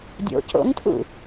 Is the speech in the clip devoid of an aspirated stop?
no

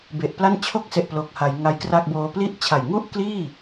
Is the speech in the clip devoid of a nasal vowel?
yes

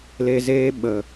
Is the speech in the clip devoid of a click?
yes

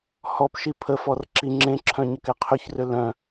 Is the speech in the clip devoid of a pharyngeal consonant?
yes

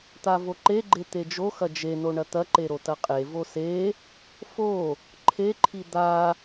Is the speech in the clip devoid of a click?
no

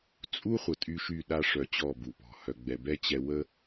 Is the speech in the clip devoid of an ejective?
no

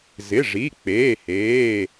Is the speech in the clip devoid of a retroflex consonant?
no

